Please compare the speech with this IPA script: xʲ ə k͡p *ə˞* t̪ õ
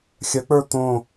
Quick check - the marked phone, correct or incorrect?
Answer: correct